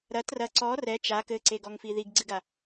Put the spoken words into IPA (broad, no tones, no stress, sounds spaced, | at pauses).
ɾ ɐ t r ɐ ǀ ɔ r ɛ t͡ʃ a k ɘ ǀ e ɡ ɔ ŋ f i ð i ɡ ɡ͡ǀ ɨ ɡ a